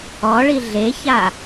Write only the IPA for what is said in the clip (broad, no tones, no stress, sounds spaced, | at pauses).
ɔ ɭ i ɮ e ç a